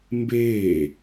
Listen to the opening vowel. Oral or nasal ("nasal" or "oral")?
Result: oral